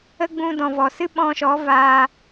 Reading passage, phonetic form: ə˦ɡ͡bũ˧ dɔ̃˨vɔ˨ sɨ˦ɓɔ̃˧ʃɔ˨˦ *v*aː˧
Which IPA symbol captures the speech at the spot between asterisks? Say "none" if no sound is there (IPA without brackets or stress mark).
v